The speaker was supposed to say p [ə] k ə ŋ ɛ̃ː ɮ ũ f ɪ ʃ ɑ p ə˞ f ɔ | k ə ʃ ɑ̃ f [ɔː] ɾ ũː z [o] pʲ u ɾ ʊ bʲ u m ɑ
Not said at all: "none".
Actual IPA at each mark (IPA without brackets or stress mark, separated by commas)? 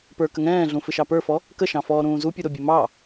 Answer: ə˞, ɔː, u